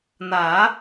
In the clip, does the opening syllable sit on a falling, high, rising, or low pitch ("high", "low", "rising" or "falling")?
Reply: rising